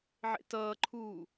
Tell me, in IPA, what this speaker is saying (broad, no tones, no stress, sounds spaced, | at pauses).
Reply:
ʕ ḛ t ʌː ǃʰ uː